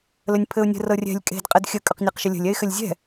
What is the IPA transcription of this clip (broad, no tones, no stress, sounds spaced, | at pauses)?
l ə nʲ pʰ ɘ ʊ̯ nʲ ə̤ r ɤ rʲ ɛ̤ lʲ kʼ e̤ d qʼ ɘ d xʲ ə kʼ ʏ q nʲ ɤ q ʃ ɘ lʲ ə̤ lʲ ɛ ɪ̯ x ɘ lʲ zʲ ɛ̤